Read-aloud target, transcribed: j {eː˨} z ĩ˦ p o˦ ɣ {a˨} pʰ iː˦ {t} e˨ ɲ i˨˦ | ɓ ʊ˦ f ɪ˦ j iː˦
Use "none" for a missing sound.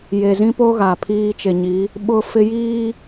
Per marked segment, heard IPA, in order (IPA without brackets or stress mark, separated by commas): e˨, a˨, t͡ʃ